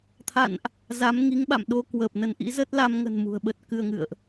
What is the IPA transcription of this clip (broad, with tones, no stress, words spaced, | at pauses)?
t̪ʰa̰˧˨nʔ | za˨˦mŋi˨˦ŋ ɓa̰˧˨mɗo˧kwəː˨˩p̚nə˧n ʔḭ˧˥zə˦˥t̚ la˧mŋə̤˨˩n mṳ˨˩ə̯ɓə˦˥t̚kɨ˧ə̯ŋɨ̰˧˨ə̯ʔ